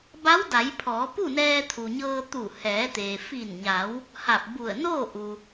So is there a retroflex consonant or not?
no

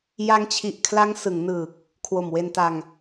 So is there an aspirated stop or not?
yes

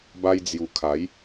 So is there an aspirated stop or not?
yes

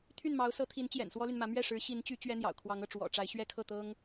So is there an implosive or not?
no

